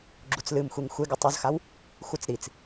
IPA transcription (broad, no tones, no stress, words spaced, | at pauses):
ɡ͡ǁut͡slɨmxʷiŋ xʷeɡɨ tˤuzxaw | xʷɨt͡s ɾit͡s